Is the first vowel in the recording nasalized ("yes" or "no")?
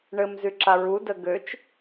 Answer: no